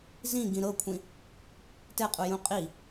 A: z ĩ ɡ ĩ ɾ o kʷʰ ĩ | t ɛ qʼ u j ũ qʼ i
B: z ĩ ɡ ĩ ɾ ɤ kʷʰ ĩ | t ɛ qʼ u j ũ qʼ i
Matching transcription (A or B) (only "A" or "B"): B